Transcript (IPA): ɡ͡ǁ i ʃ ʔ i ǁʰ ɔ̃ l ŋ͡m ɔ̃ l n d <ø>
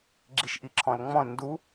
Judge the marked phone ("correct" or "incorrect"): incorrect